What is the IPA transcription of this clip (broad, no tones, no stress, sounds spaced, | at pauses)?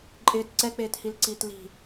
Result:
ǃʼ ɪː t ǀ ɛ k͡p eː t h i l ǀ iː t l i̤